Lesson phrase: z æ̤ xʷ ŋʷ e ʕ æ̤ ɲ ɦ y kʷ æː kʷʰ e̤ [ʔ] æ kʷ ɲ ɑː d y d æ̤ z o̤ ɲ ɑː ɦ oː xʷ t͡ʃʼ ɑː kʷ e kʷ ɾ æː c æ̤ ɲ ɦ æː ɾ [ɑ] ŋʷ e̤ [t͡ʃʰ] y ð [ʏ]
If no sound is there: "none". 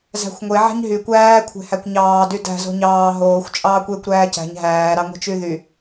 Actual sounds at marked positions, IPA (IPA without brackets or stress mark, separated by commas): h, ɑ, t͡ʃ, y